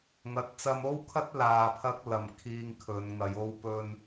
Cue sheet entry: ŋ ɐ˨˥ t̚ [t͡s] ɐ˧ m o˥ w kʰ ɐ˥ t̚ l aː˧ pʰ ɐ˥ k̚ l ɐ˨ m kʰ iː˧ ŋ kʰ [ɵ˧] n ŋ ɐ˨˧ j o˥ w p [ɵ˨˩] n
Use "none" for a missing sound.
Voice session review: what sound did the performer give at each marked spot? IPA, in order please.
t͡s, ɵ˨˧, ɵ˧

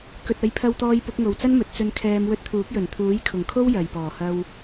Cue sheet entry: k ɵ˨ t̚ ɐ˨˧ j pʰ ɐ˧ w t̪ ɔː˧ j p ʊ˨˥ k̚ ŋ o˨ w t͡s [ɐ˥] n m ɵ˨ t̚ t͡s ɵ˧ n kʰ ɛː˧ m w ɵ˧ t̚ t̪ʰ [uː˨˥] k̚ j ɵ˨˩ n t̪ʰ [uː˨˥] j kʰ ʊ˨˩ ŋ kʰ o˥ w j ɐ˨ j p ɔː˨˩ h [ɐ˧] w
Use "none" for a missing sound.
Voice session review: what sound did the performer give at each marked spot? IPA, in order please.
ɐ˥, uː˨˥, uː˨˥, ɐ˧

